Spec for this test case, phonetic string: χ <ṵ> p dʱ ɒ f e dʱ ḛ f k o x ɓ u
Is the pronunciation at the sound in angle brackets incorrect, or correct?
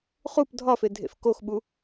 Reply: incorrect